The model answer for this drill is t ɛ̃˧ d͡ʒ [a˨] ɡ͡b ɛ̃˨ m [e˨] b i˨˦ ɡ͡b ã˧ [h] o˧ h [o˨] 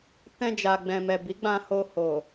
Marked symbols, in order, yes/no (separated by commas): yes, no, yes, yes